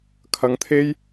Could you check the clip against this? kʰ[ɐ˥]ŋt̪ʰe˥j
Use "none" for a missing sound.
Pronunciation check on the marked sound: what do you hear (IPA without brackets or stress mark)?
ɐ˧